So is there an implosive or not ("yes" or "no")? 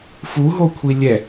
no